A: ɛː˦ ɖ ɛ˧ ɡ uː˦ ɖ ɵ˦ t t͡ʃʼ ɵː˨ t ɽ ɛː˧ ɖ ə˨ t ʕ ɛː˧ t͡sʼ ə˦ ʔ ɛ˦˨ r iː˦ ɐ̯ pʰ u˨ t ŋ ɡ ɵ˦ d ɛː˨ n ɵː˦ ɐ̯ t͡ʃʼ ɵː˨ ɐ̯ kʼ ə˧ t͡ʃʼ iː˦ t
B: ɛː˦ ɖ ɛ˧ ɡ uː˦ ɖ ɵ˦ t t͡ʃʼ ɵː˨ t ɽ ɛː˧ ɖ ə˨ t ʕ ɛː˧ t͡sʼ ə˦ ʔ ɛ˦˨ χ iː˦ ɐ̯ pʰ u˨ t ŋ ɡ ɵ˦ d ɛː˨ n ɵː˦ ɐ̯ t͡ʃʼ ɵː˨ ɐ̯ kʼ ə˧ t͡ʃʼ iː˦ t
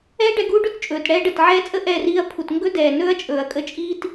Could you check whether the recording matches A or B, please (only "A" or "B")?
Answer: A